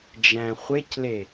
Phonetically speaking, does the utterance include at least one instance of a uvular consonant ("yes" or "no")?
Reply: yes